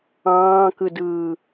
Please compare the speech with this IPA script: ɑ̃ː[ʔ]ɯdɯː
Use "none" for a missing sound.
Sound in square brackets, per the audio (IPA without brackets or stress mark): k